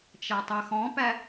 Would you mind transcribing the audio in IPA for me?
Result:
t͡ʃ æ tˤ ɛ x ɔ̃ p æ

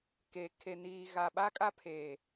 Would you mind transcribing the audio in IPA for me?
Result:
k e˨ kʰ e˨ n iː˨ ɣ a˨ ɓ a˦ kʼ a˦ pʰ eː˨

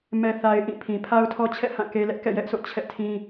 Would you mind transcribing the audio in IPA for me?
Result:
m ɛ˦ θ a˦ ɪ̯ ʔ ĩ˦˨ pʰ ĩ˨ pʰ a˦ ʊ̯ tʰ ɔ˦ t͡ɕʰ ɛ̰˦˨ h ã˦˨ k e˦ l ɛ˦ ʔ k ɛ̰˦˨ j ɛ˦ ʔ s o̰˦˨ t͡ɕʰ ɛ̰˦˨ tʰ ĩ˦

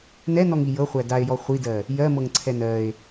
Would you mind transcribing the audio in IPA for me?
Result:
n ɛ n ɔ ŋ i j ɤ χʷ æ d a e̯ j ɔ χʷ i d ɜ | j ɜ m ɤ ŋ ǀʰ ɛ n ɜ e̯

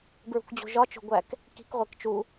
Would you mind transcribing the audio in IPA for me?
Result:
b ɹ ṳ k d͡ʑ o̤ ʒ ɒ t͡ʃ o̤ ɡʷ æ k | k i̤ k ʁʷ e k t͡ʃ u

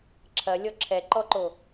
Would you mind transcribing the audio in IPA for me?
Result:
ǁʰ ɐ lʲ ɔ ǁʰ ɛ ǃ ɔ ǃ o

